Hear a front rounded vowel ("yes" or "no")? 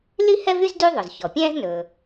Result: yes